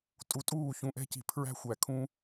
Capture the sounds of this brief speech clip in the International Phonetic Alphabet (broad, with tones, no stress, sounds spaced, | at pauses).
tʼ u˨ tʼ uː˦˨ ç ũ˨ ʔ ɛ̤˧ c i̤˨ pʰ ɹ æ̤˦ xʷ æ˨ kʰ ũ˧